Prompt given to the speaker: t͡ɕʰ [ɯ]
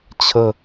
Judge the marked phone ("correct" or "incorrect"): incorrect